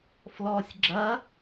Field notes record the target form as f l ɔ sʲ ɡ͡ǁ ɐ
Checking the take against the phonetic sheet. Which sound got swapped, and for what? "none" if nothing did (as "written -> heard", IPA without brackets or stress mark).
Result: none